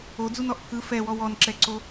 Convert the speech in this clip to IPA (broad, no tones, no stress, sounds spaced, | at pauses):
o d͡z u n ɔ ʔ pʰ ɯ f ɛ w ɔ w ɔ n ǁ ɛ ǀ o